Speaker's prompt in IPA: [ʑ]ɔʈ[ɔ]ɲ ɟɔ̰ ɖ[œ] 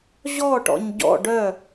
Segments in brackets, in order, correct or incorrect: correct, incorrect, correct

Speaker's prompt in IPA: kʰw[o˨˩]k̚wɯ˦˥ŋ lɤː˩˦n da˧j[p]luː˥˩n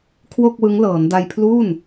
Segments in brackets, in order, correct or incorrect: incorrect, incorrect

